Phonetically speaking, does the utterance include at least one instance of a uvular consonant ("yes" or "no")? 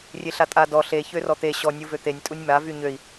no